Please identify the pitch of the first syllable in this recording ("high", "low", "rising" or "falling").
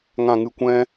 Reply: low